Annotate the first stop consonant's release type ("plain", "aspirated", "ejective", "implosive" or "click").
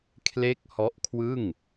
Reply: aspirated